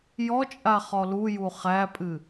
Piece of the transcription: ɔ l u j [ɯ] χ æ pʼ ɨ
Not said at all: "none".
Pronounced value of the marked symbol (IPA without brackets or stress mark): u